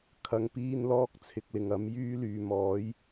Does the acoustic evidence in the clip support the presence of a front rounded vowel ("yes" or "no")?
yes